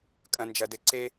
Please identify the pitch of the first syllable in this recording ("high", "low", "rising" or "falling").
low